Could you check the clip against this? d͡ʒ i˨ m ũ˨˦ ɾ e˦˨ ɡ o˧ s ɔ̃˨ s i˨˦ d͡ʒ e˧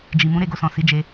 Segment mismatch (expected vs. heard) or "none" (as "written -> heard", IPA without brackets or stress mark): none